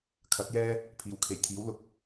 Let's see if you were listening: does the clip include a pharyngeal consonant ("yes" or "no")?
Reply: no